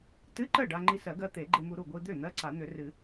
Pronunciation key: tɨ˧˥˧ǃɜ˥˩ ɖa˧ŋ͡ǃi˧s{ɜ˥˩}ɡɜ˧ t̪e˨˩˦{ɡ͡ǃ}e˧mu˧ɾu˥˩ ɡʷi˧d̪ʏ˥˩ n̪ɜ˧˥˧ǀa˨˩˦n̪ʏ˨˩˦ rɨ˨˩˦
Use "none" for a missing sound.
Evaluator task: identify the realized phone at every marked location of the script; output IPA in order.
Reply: ɜ˨˩˦, ɡ͡ǃ

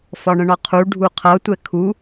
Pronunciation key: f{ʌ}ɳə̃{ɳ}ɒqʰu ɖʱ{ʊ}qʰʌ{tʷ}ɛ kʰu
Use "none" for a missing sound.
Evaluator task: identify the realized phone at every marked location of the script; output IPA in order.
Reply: ɒ, ɳ, u, tʷ

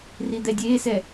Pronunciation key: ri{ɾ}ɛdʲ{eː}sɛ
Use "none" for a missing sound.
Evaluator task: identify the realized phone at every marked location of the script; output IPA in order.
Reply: d̪, eː

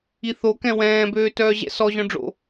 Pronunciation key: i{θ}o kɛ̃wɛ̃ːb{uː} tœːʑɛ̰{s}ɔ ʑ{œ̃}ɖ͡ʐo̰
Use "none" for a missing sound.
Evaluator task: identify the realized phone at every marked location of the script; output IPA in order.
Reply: θ, øː, s, œ̃

